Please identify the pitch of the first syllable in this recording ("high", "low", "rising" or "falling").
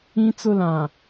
high